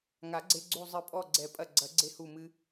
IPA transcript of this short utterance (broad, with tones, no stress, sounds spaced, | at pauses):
ŋ a˨˩˦ ɡ͡ǀ e˧ ɡ͡ǀ u˧˩ zˤ ɨ˨˩˦ pʼ ɔ˧˩ ɡ͡ǀ ɛ˨˩˦ pʼ ɐ˧˩ ɡ͡ǀ ɐ˨˩˦ ɡ͡ǀ e˧ h u˧˩ m ɨ˧